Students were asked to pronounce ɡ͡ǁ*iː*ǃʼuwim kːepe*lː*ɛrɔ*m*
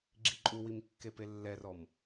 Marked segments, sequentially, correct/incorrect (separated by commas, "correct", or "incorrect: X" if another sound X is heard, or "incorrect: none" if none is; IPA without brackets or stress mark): incorrect: i, correct, correct